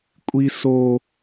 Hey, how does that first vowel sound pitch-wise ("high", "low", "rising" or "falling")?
high